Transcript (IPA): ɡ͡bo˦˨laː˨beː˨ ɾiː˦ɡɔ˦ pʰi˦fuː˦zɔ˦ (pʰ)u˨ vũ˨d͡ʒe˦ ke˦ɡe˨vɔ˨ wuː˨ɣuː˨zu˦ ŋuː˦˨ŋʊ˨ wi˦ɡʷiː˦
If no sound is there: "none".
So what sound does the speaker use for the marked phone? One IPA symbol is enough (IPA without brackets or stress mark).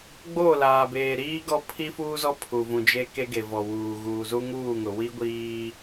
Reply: pʰ